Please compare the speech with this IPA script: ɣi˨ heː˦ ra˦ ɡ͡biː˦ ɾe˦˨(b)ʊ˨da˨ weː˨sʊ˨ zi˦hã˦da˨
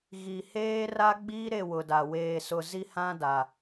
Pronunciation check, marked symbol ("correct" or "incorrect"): incorrect